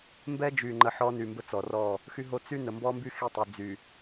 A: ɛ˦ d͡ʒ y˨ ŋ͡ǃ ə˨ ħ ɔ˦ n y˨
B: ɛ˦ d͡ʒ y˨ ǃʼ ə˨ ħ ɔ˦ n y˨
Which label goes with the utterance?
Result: A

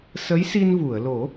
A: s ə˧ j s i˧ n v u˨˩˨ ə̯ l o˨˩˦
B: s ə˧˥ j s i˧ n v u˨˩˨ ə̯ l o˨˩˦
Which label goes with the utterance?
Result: B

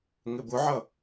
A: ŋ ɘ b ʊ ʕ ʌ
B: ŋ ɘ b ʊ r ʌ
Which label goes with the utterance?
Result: A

